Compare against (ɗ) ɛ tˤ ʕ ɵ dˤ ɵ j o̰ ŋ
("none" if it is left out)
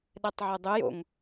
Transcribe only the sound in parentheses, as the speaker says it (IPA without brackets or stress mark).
ɗ